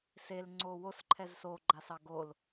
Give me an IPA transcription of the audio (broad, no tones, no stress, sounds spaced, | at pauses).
s e l ŋ͡ǀ o w o s ǃʰ ɛ z s o ɡ͡ǃ a s ɑ ɡ o l